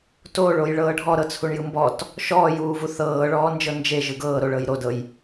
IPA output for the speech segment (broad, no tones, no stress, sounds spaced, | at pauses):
t o ɭ o j ɭ ɤː ɖʱ ɔ ɾ ɤ t͡sʰ u ɳ j ɯ m b ɔ t | ʃ ɔː j uː v u θ ɤː ɭ ɔː n d͡ʒ ɤ n d͡ʒ e ʒ ɯ ɡ ɤː ɾ o ɭ ɤ j ɾ o d ɤ j